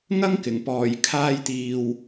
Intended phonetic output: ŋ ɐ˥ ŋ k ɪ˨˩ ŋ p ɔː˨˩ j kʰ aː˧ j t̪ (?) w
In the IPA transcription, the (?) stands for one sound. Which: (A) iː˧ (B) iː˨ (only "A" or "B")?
B